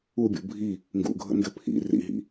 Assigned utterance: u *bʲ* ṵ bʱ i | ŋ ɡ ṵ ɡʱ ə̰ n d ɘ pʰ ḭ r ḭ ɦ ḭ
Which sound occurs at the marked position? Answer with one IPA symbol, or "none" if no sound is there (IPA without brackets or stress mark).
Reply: bʲ